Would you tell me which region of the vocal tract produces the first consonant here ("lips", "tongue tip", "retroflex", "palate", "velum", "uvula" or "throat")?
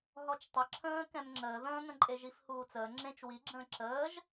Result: throat